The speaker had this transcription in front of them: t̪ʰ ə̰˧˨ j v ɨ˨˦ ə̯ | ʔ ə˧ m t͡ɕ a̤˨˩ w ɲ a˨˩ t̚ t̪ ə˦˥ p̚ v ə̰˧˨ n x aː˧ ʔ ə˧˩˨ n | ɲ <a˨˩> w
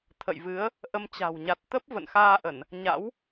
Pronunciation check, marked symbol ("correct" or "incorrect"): incorrect